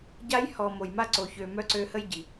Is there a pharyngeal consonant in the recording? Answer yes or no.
no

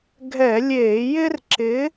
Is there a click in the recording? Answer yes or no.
yes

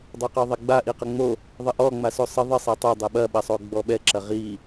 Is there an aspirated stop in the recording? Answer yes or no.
no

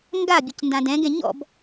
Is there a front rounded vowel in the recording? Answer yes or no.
no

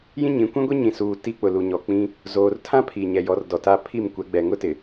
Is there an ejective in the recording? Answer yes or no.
no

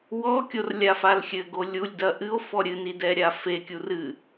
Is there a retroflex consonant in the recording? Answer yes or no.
no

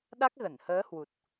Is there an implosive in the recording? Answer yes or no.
yes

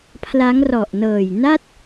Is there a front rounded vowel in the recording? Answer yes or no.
no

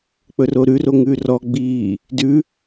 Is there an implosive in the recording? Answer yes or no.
no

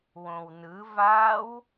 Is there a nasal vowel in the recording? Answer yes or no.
yes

